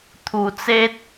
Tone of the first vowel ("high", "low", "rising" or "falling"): low